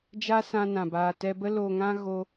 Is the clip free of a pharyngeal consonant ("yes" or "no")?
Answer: yes